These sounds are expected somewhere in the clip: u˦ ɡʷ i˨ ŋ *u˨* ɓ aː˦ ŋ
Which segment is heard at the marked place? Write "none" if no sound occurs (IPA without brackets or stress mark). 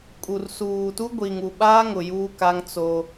u˨